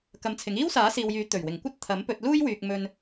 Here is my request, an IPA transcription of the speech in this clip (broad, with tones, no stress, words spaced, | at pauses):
kɐ˧mt͡sʰɪ˨˥ŋ iː˥wsaː˨˥siː˨wjyː˨˥ t̪ɵ˨˩ɥwɪ˨˩ŋ kʷɐ˥t̚t̪ʰɐ˨˥mpɵ˧t̚ luː˥jwyː˨k̚ mɵ˧n